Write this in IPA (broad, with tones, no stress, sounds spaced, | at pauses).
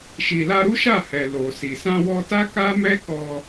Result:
ʃ i˨ l a˧ ɾ u˦ ʃ a˦˨ h ɛ˨ l o˨ s i˨ s ã˧ w ɔ˧ t a˦ k a˦ m ɛ˦ k ɔ˧